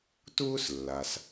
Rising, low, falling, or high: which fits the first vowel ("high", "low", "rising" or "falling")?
high